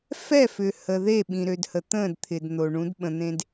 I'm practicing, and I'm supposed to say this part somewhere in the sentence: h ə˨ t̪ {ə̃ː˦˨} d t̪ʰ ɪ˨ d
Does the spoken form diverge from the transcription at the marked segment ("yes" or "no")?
no